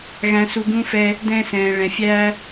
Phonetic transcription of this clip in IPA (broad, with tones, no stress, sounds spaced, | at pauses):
ɣ æ̃˨ s u˨ ɡ ũ˧ f ɛ˧ | d ɛ̃˧ s ɛ̃ː˨ ɭ ɛ̃˨ fʲ æː˧